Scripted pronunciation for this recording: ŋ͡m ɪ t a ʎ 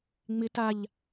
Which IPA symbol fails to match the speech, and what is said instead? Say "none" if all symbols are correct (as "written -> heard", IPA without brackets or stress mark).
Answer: none